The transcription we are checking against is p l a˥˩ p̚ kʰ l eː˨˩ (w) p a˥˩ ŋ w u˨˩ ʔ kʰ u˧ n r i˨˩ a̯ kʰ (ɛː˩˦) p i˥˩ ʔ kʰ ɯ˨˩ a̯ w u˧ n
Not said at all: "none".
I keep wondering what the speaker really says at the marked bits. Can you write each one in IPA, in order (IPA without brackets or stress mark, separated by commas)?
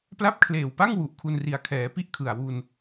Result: w, ɛː˩˦